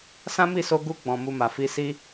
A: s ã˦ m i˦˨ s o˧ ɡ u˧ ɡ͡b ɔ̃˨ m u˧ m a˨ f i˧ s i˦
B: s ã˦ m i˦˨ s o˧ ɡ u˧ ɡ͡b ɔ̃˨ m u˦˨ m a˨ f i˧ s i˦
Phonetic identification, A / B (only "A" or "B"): A